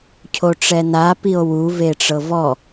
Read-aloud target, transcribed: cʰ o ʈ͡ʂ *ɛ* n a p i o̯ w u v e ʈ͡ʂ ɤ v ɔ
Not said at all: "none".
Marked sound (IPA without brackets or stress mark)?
ɛ